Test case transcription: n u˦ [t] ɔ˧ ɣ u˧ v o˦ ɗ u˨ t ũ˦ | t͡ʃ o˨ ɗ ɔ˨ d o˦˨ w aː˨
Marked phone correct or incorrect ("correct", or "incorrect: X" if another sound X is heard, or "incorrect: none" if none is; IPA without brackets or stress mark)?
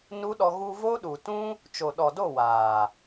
incorrect: ɗ